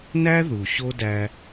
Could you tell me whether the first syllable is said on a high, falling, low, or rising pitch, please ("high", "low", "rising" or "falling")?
high